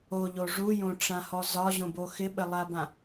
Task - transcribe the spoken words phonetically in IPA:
o ʎ o ʐ u j õ ʈ͡ʂ ã h ɔ z ɒ ʑ õ b o x ɪ ɓ ɘ lˠ a b ã

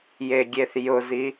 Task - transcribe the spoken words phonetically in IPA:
j e ɡʲ e θ j ʊ z i

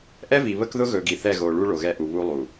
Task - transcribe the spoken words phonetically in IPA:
ʔ ɛ˦ v i˨ β ə˦ k ð ʊ˦ ɣ ɵ˨ ɡ i˨ θ ɛ˦˨ ɣ o˨ ɭ u˦ ɭ o˨ ɣ ɛ˦ ʔ u˨ β u˦ lˠ u˨

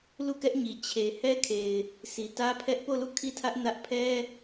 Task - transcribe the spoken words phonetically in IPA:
l u˦˨ k ɛ˦ ʔ ɲ i˨ t͡ɕʰ e˨ h ɛ˦ kʰ e˨ ɪ̯ | s i˨ t ä˦ pʰ ɛ˦ ʔ p o˦˨ l u˦˨ kʰ i˦˨ tʰ ä˦ ʔ n ä˦ ʔ pʰ ɛ˦

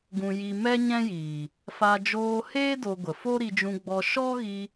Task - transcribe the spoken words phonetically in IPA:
ɡ ũ˧ j i˧ m ɛ˦ ɲ ɛ̃˦ j iː˨ | f a˧ d͡ʒ oː˧ h eː˦ d o˧ ɡʷ ə˨ f o˦ ɾ i˧ d͡ʒ ũ˧ ɡ͡b ɔ˧ ʃ ɔ˦ ɣ i˧

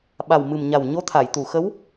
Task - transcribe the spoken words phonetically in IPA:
ɓ a˨˩ w m ɨ˨˩ m ɲ a˨˩ w ɲ o˧˥ t̪ʰ a˨˩˨ j t̪ u˨˩˨ x ə˧˥ w

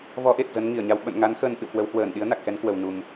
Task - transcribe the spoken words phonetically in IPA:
v ɔ˨˦ ʔ e˨˩ t̚ z ə˨˦ n ŋ i˧˩ ə̯ ɲ a˧ w ɓ ə̰˧˨ n ŋ a˨˦ n x əː˧ n ʔ ɨ̰˧˨ w k w ə˨˦ w h w əː˧˩ n ɗ i˨˦ ə̯ n a˨˩ k̚ x ɛ˨˦ n k w ə˨˩ w n u˨˩ m

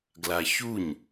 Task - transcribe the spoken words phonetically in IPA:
ɡ l a ç u ɲ

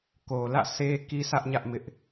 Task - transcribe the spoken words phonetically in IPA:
k o˨ l ä̰˦˨ sʰ e˦ k i˦ sʰ ä˦ ʔ ɲ ä˦ ʔ m ɪ˦ ʔ

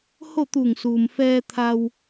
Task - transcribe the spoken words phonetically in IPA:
h o˥˨ t̪ uː˧˩ ŋ s uː˩ m f ɛː˧ t̪ʰ a˧ w

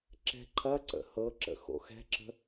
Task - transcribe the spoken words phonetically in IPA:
ǁ ɛ̤ ǃʰ ɐ ǀ ə̰ h ɤ ǁ ə̰ x o̰ x ɛ̤ ǁ ə̤

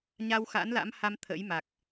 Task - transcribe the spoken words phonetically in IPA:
ɲ a˧ w x a̰˧˥ n l a̰˧˥ m h a˧ m t̪ʰ ə̰˧˥ j m a˨˩ k̚

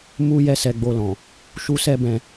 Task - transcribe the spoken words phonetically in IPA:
m u˦ j ɛ˦ s ɛ˧ ɡ͡b o˧ l ɔ̃˨ | ʃ u˦ s ɛ˦ b ɛ̃˧

